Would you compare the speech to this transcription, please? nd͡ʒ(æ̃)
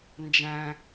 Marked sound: correct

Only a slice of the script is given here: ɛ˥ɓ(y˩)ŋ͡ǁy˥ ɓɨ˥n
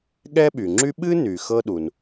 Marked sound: correct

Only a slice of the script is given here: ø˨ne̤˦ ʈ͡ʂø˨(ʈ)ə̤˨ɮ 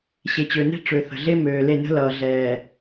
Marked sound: incorrect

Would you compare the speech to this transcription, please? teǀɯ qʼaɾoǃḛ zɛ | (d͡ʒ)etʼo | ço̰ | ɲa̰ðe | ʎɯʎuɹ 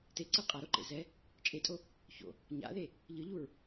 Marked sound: incorrect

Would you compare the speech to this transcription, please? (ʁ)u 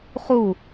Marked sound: incorrect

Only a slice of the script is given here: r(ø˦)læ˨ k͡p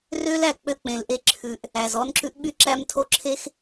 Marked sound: correct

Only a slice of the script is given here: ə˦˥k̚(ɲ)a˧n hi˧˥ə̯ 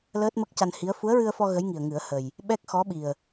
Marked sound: incorrect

